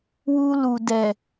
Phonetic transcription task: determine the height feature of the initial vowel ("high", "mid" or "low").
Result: high